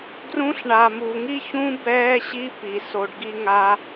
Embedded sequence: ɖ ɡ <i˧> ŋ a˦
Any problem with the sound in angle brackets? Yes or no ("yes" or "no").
yes